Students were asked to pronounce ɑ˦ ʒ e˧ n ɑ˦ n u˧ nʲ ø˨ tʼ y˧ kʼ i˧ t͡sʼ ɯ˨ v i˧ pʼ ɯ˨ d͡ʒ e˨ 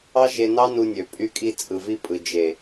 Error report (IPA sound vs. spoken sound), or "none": tʼ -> pʼ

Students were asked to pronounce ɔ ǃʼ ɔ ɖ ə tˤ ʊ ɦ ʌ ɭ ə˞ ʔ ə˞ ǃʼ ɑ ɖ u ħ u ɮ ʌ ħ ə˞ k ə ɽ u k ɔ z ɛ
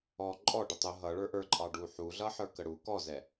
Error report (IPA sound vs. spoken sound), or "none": none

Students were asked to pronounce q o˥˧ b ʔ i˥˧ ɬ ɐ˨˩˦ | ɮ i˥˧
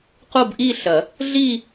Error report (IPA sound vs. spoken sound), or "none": none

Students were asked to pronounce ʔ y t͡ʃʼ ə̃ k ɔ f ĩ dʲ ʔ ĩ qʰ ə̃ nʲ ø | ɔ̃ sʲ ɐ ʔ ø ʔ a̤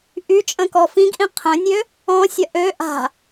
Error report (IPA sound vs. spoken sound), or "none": dʲ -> ɡ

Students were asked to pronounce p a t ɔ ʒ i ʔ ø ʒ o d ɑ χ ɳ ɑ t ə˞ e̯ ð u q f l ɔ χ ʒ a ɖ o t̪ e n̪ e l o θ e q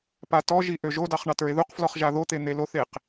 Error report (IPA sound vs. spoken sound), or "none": ɖ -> ð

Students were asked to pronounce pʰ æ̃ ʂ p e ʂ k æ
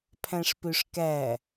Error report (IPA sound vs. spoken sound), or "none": e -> ø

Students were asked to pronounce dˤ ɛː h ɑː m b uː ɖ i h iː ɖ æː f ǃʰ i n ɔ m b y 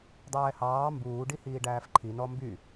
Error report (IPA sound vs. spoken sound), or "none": none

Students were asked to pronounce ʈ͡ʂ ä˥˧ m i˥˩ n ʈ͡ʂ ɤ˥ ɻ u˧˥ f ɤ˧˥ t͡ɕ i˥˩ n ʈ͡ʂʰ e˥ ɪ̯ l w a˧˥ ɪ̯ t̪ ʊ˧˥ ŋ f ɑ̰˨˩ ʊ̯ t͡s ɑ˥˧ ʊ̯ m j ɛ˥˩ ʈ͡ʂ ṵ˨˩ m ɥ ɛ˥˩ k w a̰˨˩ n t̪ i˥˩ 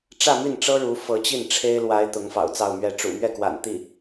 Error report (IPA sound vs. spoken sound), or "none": j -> ɥ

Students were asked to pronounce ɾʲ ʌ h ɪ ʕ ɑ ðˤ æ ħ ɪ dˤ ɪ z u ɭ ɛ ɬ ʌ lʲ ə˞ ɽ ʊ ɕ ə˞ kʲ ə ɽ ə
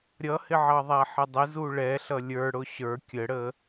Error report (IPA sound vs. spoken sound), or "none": none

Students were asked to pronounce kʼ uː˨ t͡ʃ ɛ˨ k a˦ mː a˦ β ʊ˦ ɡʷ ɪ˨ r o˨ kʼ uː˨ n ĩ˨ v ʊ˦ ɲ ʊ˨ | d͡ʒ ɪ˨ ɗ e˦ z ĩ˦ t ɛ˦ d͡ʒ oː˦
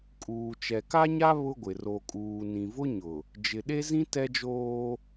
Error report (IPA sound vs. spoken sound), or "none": mː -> ɲ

